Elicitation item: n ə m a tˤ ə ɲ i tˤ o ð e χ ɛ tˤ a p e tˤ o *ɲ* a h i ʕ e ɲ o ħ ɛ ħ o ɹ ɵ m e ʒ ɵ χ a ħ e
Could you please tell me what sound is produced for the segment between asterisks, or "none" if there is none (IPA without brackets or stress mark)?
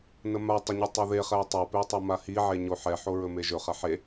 m